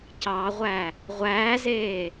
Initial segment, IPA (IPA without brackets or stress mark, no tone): c